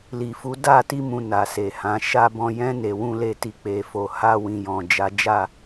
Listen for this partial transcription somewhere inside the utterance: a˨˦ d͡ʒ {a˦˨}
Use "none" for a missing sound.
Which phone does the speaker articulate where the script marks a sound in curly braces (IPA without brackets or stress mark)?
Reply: a˦˨